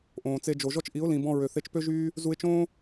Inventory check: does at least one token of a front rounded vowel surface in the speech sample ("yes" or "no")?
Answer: yes